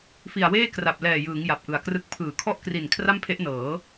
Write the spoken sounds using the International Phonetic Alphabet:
f i˨˩ a̯ w eː˥˩ k r a˨˩ p̚ l ɛː˨˩ j ɯː˩˦ ŋ j a˨˩ p̚ ʔ ɯ˨˩ a̯ k r ɯ˥˩ k̚ pʰ ɯː˩˦ kʰ ɔ˥˩ ʔ k r i˨˩ n kʰ r a˥˩ m pʰ e˦˥ ʔ n ɤː˩˦

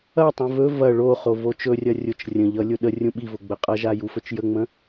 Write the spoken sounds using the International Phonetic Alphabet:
ɐ tˤ ũ v ɵ v ɐ ɭ o χ o v o t͡ʃ ɵ rʲ ɐ rʲ ʊ t͡ʃ rʲ ə̃ ʎ ʌ lʲ ʊ ɗ ə rʲ ũ ɓ i v ʊ ɡ͡b ə qʼ ʌ ʒ a j u f ɵ t͡ʃ j ə ŋ͡m ə̃

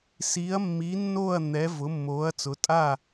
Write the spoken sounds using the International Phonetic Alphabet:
s iː˨˥ ɐ̯ mː i˨˥ nː oː˥˨ ɐ̯ n̪ ɛ˨˥ v ʊ˨˥ mː oː˨˥ ɐ̯ t͡s ʊ˨˥ tʼ a˥˨

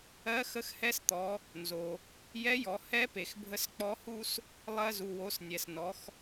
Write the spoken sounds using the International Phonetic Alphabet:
ɜ˧˥ x ə˧˥ x h ɛ˧˥ s t̪ ɔ˩˧ | n z o˩ | j ɛ˧˥ j ɔ˩˧ h ɛ˧˥ p e˩ x bʱ ə˧˥ s k͡p ɔ˧˥ h u˥ s | lˠ ɜ˧ z u˩ w o˩˧ s nʲ ɛ˩ s n ɔ˩˧ x

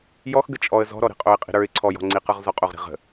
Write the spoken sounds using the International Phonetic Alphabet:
j ɔ x ɡ ə t͡ʃʼ ɔ ə̯ z ɔ̤ ɾ ɔ ɾ i̤ qʼ o ɪ̯ qʼ i̤ ɾ ə˞ ɪ̯ ǀʰ ɔ j ɔ̤ ŋ͡ǀ i q ə˞ ʁ z ɔ qʼ o ʁ ɾ i̤ ʁ ə̤

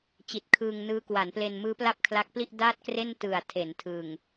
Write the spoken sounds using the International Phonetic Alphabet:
t͡ɕ i˨˩ t̚ kʰ ɯː˧ ŋ n ɯː˦˥ k w a˩˦ n p l e˧ n m ɯː˦˥ p l a˥˩ p̚ kʰ l a˦˥ k̚ p l i˥˩ ʔ d aː˥˩ t̚ k r e˥˩ n t ɯ˨˩ a̯ tʰ e˩˦ n tʰ ɯ˨˩ ŋ

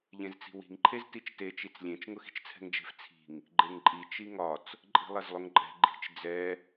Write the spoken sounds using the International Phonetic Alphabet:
ʎ ẽ z t͡s i̤ w i̤ ŋ ǃʰ e z t i t͡ʃ t e t͡ʃ i t͡s lʲ ẽ t͡ʃ ŋ ʊ x i̤ t͡ʃ t͡sʰ ɛ̤ ŋ d͡ʒ e̤ f t͡sʰ i̤ ŋ | ɡ͡ǃ e ŋ ǃʼ i t͡ʃ i ŋ ɒ t͡s | ǃʼ i̤ lˠ ɛ z lˠ ʊ ŋ ǃʼ ɛ̤ ɡ͡ǃ i̤ t͡ʃ d͡z ɛ

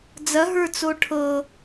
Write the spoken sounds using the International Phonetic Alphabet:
d͡z ɐ ɦ ə˞ t͡s o ʈʰ ɤ

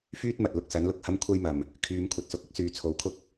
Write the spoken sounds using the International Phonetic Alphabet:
f yː˥ t̚ m ɐ˨ t̚ l ʊ˧ k̚ s ɐ˨˥ n l ʊ˧ k̚ h ɐ˥ m kʷʰ ɐ˥ j m ɐ˨ m | kʰ yː˨˧ m kʷʰ ɐ˨ t̚ s ʊ˧ k̚ ɪ˥ k̚ s yː˨ t͡sʰ o˨˧ w kʰ ʊ˥ k̚

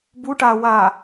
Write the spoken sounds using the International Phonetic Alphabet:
b u ʈ a w a

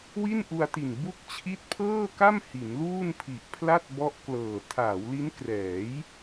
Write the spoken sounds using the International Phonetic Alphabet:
w i˥˩ n ʔ u˧ a̯ t i˨˩ n b u˥˩ k̚ t͡ɕʰ i˦˥ t̚ pʰ ɤː˥˩ k a˥˩ m h i˩˦ n l uː˥˩ n pʰ i˨˩ ʔ pʰ l a˥˩ t̚ b ɔ˦˥ ʔ k l ɤː˨˩ tʰ aː˩˦ w l i˦˥ n k r ɛː˩˦ j

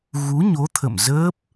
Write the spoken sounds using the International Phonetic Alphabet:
ɣ u˨˦ ɲ o˨˦ t̪ʰ ə̰˧˨ m z əː˦˥ p̚

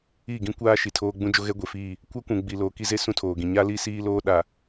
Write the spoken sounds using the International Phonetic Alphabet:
i˦˨ ɡ ĩ˦ kʷ aː˦ ʃ i˨ tʰ oː˦ ɡ͡b ũ˦ d͡ʒ o˦ ɣ ɛ˦ ɡʷ e˨ f iː˦˨ | kʷ a˦ kʷ ũ˨ ɡ͡b i˨ l oː˨ k i˦ z e˦ s ũ˦ tʰ oː˨ ɡ ĩ˨ ɲ a˦ l i˦ s iː˦ l oː˦ ɗ a˨

